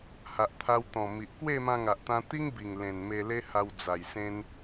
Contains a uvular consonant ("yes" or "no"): no